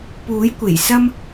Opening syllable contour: rising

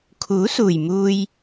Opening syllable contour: rising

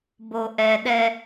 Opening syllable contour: low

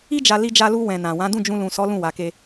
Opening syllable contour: high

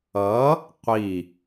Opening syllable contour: rising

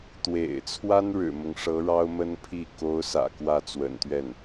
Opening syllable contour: low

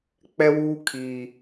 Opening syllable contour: high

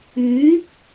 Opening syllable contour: rising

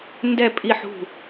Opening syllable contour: falling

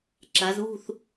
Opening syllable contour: rising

